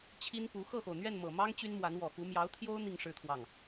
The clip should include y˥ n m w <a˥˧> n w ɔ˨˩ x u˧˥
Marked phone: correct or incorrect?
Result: incorrect